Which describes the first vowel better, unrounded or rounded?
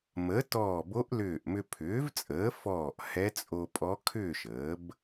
unrounded